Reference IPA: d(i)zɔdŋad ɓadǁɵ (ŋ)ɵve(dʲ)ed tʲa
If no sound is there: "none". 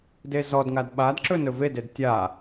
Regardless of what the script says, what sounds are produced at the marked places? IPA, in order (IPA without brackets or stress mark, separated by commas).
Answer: e, n, d